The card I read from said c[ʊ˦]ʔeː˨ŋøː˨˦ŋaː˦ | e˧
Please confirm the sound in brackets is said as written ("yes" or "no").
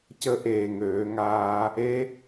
no